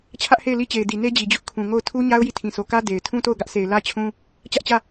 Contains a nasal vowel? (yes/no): yes